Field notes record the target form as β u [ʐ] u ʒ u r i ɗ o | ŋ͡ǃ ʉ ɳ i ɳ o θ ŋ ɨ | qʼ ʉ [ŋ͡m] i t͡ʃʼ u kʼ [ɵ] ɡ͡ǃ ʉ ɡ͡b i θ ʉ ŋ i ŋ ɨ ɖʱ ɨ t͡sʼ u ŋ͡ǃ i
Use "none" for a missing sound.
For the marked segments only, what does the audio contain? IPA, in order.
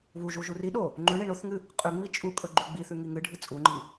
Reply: ʒ, ŋ͡m, ɵ

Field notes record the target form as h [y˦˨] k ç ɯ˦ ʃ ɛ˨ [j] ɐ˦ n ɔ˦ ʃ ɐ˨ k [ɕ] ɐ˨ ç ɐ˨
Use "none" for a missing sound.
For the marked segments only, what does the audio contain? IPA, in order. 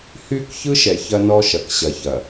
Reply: y˦˨, ç, ɕ

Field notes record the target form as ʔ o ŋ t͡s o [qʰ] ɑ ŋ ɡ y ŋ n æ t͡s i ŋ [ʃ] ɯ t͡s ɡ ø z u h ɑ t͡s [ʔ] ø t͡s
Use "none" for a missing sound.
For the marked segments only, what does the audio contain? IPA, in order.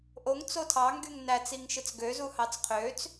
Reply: tʰ, ʃ, qʰ

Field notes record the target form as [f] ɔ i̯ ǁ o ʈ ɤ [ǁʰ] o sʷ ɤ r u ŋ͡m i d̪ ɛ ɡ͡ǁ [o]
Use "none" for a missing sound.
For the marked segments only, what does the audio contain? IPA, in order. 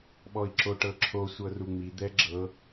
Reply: ɓ, ǁʰ, ɤ

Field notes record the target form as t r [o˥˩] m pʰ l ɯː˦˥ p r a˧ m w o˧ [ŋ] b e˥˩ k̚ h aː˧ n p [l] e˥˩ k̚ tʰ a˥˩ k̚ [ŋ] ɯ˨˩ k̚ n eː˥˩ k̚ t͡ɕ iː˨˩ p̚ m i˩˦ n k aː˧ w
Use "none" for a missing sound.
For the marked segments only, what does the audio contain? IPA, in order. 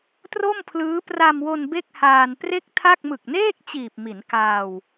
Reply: o˥˩, n, r, m

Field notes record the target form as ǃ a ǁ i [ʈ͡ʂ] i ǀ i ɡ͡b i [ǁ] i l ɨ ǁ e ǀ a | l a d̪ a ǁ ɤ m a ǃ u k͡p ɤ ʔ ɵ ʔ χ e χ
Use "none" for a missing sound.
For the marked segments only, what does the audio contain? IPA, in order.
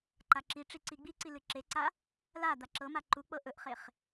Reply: ʈ͡ʂ, ǀ

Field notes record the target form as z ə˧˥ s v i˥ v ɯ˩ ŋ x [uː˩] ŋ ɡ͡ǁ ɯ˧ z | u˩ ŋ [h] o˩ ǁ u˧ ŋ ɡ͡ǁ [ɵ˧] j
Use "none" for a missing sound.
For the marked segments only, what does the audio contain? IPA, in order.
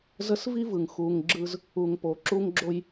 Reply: uː˩, p, o˧

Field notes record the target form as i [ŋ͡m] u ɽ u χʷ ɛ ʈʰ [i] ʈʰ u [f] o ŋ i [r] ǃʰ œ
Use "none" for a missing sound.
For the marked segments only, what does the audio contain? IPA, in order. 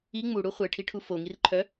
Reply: ŋ͡m, i, f, r

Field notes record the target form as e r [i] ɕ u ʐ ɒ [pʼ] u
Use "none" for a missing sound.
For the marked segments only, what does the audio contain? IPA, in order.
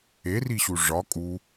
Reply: i, kʼ

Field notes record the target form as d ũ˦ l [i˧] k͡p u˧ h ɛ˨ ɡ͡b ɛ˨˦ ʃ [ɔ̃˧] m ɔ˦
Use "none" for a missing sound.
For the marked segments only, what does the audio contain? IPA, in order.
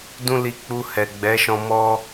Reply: i˧, ɔ̃˧

